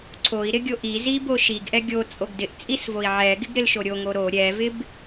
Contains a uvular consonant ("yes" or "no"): no